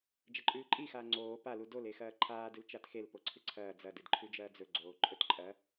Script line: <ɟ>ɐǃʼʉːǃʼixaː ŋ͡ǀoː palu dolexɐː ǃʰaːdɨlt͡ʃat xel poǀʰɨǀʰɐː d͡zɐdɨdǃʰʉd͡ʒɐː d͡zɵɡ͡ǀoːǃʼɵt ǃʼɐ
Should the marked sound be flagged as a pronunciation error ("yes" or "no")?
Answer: yes